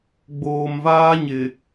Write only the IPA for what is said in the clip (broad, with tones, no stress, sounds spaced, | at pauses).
ɡ͡b oː˨ m v aː˦ ɲ ɪ˨